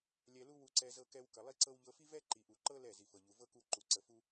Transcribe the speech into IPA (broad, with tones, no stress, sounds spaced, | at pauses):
lʲ ɛ˧ l u˦ w u˧ ǀ ɛ˧ z ɤ˧ k ɛ˧ w k ə˨ lˠ i˦ ǀ ɤ˦ w ʎ ɤ˧ f i˦ v ɛ˦ ǃ i˨ ʔ u˨ ǃ ɤ˦ l ɛ˦˨ z i˨ f ɤ˨ ʎ u˨ v ɤ˦ k u˧ ǃ u˨ ǀ ə˨ f u˧